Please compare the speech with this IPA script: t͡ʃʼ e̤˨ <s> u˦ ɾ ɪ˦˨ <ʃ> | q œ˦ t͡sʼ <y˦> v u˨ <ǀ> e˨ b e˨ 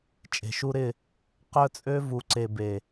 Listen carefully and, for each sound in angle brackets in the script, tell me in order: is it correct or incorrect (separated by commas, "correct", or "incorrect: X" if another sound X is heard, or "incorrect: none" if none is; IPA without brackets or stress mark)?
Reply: incorrect: ʃ, incorrect: none, incorrect: ø˦, correct